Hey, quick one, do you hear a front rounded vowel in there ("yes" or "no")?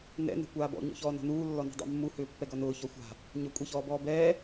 yes